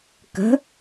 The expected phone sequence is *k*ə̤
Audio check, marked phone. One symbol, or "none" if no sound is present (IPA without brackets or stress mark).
k